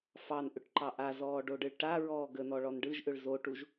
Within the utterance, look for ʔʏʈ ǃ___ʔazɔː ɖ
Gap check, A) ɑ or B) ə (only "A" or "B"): A